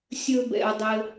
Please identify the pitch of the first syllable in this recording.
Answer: high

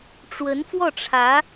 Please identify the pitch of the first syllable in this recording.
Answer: rising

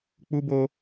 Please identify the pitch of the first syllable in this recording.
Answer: high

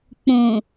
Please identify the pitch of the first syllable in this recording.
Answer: low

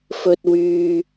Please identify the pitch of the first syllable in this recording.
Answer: low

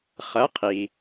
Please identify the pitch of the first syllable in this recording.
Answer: rising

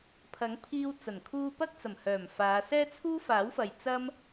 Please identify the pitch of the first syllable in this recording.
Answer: rising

